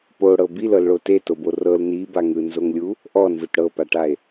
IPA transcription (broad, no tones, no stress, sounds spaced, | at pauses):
p o ɽ ɤ b i l ɤ l ɭ o t e t o b o r ɤ l n i b a ŋ ɯ n z o ŋ lʲ u | ʔ ɔ n z ɯ t ɽ ɤ p a ʈ a e̯